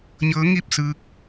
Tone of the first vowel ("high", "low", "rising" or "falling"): rising